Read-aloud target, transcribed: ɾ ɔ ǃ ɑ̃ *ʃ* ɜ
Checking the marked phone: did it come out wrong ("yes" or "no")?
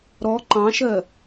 no